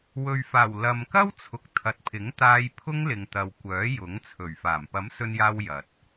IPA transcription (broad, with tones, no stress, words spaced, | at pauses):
wɵ˨ɥfaː˨˩w lɐ˨mkɐ˥wt͡sʰʊ˨˥k̚ t̪ʰɐ˨˥t̚pʰɪ˨˥ŋt̪aː˧j pʰʊ˥ŋlɪ˨ŋt̪ɐ˨w kʷœː˨˥ jʊ˨˥ŋt͡sʰɵ˨˩ɥfaː˨˩m pɐ˨˥msɵ˧njaː˧w jɐ˨t̚